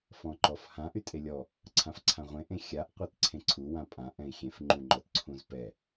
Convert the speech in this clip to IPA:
f ɔ̃ ǃ ɔ f h ã ʔ y tʼ e lʲ ɔ | ǀʰ ã f ǀʰ ã ʁʷ ẽ ʔ ẽ xʲ a ʔ qʷ ɛ t ǀʰ ẽ ǀʰ u w ã pʼ ã ʔ ɛ̃ i̯ xʲ ẽ f ŋ͡ǃ ũ ŋ͡ǃ ɔ t ǀʰ ũ z p ɛ

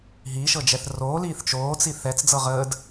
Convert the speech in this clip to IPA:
ɦ iː ʃ ɤ d͡ʒ ɛ θ r oː l iː θ t͡ʃ oː t͡s i θ ɛ t͡s d͡z ɤ ʁ əː d

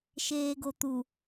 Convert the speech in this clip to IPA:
ʃ eː ɡ o t̪ u

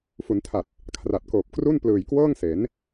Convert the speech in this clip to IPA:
f u˩˦ n tʰ a˨˩ t̚ | kʰ r a˨˩ t̚ k oː˨˩ p̚ k r u˥˩ n p l ɯː˨˩ j k w ɤː˥˩ ŋ s e˩˦ n

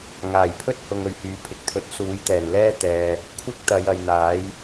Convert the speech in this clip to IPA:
ŋ aː˨˩ j pʰ ɵ˥ t̚ h ʊ˨ ŋ ɵ˨ ɥ h yː˨˧ pʰ ɪ˨ k̚ t̪ʰ ɵ˨˥ t̚ s uː˨˥ j t̪ ɛː˨˩ n l ɛː˥ t̪ ɛː˨ | kʷʰ ɪ˥ k̚ t̪ ɐ˨˧ j ɐ˨ j n̪ aː˨˥ j

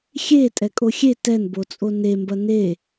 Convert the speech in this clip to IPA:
xʲ e tʼ ɛ kʼ o xʲ e t ɛ n b o t͡sʼ o n e m b ɐ n e

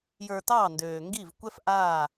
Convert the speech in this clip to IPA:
j ə˞˨ t ɑː˦˨ n d øː˨ ŋ ɡ i˦˨ v kʷ ɛ˦ f ʔ aː˦˨

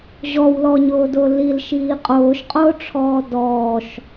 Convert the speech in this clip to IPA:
ʑ ɔ w l ɔ ɲ ʊː d ʊː l i l ʃ iː qʼ ʊː ʃ qʼ ʊː ʈ͡ʂʰ ɔː d ɔː ʃ

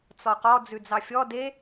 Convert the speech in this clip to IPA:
t͡s ɔ q ɔ d͡z ʉ d͡z ɑ fʲ ɔ d e

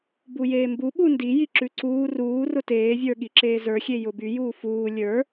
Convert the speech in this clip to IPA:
b u j eː m b u ɓ u n d i j i ǁ ʉ ǀ uː r uː r ʊ t eː vʲ ə˞ ɠ i ǁ eː z ə˞ xʲ e j ʊ b y j uː f uː lʲ ə˞

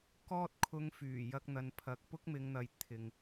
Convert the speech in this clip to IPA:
k ɔː˥ t̚ kʰ ʊ˧ ŋ f yː˨˩ j ɐ˧ k̚ n̪ ɐ˨ n pʰ ɐ˨ k̚ p ʊ˥ k̚ m ɪ˨˧ ŋ n̪ ɐ˨ j t̪ʰ ɪ˨ ŋ

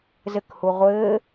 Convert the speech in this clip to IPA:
z ɘ k h u ʁʷ ɘː

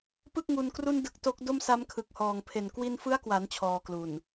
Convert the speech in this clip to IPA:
p ɯ˥˩ k̚ ŋ u˧ n k r u˥˩ n d ɯ˦˥ k̚ t o˦˥ k̚ d o˥˩ m s a˦˥ m kʰ ɯ˨˩ k̚ h ɔː˨˩ ŋ pʰ e˨˩ n k w i˧ n f ɯ˦˥ a̯ k w a˩˦ n t͡ɕʰ ɔː˧ k l u˨˩ n

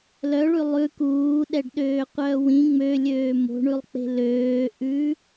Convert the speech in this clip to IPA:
l œ ɭ ʉ lˠ ʉ k uː ɗ ɛ ɖ ɗ øː qʷ œː w ĩ ŋ͡m ø lʲ øː m o̤ ɳ ʉ lˠ k͡p e̤ l øː ʔ ʉ

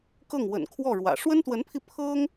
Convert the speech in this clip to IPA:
k ɤ˥˩ ŋ w ə̰˨˩ n kʰ w ɔ˥˩ ɻ w ä̰˨˩ ʂ w ə˥ n t̪ w ə˧˥ n pʰ i˧ pʰ ɤ˥ ŋ

